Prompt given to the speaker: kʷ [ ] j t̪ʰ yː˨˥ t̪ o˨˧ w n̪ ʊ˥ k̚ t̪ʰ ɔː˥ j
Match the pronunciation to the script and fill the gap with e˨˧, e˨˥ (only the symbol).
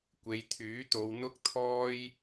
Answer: e˨˧